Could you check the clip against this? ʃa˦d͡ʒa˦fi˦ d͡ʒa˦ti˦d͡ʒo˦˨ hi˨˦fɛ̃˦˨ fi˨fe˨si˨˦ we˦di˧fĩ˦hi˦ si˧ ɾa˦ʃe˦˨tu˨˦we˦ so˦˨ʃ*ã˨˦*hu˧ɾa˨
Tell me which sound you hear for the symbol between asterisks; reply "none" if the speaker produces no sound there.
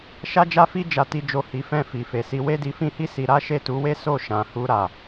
ã˨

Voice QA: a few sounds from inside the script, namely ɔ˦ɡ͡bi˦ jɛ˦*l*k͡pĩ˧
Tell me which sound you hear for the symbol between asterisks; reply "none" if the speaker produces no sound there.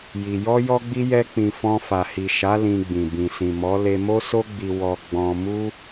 none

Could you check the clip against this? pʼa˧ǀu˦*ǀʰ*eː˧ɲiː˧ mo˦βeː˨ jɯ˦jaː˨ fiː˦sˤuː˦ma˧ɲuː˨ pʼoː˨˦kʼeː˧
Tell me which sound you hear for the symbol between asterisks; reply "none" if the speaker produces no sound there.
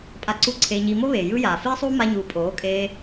ǀʰ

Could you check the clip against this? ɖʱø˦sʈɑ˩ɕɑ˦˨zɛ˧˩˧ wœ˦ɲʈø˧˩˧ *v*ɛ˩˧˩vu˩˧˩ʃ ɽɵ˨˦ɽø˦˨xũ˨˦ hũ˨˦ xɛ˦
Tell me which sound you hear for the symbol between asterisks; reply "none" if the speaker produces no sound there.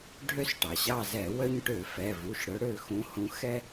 f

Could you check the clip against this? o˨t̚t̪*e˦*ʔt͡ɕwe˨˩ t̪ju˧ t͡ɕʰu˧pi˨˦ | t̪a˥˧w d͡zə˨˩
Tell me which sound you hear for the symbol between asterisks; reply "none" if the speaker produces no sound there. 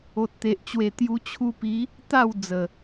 e˨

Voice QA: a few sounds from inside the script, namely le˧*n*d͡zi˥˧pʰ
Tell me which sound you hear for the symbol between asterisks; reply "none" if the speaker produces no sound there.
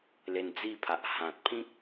n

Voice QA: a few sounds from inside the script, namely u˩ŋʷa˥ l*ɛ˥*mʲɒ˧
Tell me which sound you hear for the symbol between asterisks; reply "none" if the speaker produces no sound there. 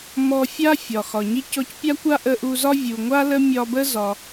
ə˥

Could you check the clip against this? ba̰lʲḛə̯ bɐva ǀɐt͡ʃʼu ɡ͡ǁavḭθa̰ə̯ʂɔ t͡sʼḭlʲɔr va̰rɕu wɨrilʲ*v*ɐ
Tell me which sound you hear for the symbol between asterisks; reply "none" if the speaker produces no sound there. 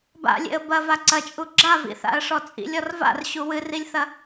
θ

